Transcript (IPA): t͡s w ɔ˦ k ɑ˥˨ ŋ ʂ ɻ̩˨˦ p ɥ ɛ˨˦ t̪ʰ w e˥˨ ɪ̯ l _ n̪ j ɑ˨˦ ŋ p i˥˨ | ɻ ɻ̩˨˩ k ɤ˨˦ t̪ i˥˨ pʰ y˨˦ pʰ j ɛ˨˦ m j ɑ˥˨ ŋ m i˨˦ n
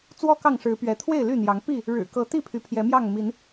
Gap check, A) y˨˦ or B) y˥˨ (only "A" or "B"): B